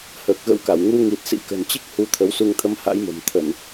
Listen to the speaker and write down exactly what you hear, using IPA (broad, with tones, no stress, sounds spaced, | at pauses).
h əː˨˩ k̚ ɣ ə̰˧˥ w k a˧˩ w ŋ u˧ ŋ i˨˩ t̚ s ḭ˧˥ k ə̤˨˩ n t͡ɕ i˦˥ k̚ h u˨˦ t̪ʰ ə˨˦ w s u˧ ŋ t̪ʰ ə˧ m h a̰˧˥ j m ə̤˨˩ m t̪ʰ ə˧˩˨ n